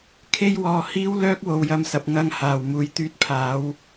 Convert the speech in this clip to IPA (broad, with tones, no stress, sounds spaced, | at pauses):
kʰ e˥ j w ɔː˧ h iː˥ w l œː˥ k̚ w o˨ w j ɐ˧ m s ɐ˨ p̚ ŋ ɐ˧ ŋ h aː˨ w m uː˨ j t̪ yː˧ t̚ pʰ aː˨˧ w